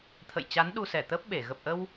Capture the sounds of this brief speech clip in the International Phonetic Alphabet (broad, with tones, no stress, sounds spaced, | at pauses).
t̪ʰ ə̰˧˨ j t͡ɕ a˨˦ n ɗ u˧ s ɛ˧˩ t̪ əː˦˥ p̚ ɓ e˧˩ ɣ ə˨˩ p̚ ʔ ə˧ w